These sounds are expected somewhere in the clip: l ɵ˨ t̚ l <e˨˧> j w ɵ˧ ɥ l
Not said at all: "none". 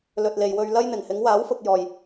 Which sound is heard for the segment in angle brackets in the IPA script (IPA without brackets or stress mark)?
e˨